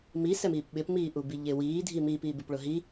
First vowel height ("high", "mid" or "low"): high